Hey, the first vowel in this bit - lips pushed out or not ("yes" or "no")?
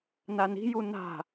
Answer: no